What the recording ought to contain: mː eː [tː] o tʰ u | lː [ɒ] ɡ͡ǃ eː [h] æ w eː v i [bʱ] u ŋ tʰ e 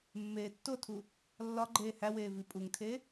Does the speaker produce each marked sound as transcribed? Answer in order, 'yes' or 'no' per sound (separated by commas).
yes, yes, yes, no